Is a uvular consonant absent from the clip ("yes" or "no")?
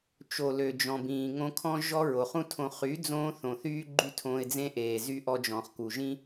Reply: no